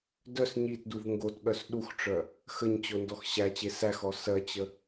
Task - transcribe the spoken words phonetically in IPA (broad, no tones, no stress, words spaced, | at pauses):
dœs ɲitduv ŋɡotɠœs ɗuxʈ͡ʂœ | xəɲt͡ɕo ndɔxɕæt͡ɕe sæxɔ sɜt͡ɕə